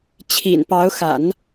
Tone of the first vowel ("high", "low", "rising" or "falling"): low